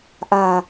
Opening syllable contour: low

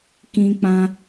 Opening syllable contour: high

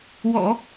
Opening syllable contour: low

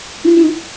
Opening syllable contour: high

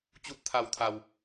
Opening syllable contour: rising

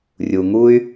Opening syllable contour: low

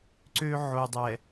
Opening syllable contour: high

